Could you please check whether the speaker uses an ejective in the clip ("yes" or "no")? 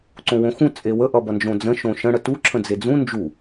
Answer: yes